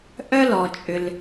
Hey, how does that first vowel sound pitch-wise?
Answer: high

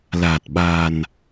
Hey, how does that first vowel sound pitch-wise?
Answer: low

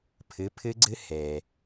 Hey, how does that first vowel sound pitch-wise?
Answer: rising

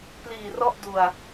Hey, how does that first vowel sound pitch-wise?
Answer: low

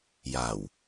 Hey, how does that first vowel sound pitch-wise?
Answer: low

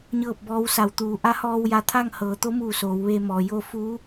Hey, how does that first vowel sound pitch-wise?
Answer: falling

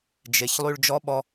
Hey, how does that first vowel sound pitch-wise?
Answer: low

